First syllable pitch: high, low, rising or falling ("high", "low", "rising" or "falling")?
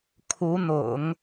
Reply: rising